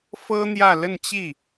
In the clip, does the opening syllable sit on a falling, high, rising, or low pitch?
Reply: high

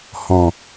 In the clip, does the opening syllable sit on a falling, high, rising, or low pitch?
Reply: low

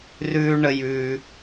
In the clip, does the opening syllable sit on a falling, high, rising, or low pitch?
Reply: high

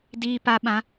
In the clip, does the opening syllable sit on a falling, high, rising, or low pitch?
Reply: low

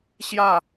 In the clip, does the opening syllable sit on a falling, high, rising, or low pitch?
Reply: falling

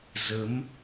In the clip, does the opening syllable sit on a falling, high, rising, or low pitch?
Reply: rising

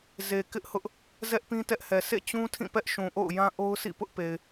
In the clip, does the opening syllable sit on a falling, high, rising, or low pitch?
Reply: low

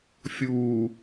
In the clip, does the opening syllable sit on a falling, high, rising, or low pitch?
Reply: low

